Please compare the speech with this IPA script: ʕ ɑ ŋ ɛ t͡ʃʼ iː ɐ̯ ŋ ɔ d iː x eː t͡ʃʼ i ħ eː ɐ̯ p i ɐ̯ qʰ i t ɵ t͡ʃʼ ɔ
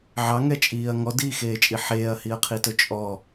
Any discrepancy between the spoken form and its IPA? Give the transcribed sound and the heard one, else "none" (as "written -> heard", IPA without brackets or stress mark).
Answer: p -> h